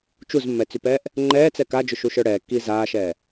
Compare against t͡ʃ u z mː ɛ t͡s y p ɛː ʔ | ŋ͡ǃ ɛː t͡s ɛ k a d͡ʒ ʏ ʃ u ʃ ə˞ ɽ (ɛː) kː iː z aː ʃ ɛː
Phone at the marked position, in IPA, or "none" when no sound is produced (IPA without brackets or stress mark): ɛː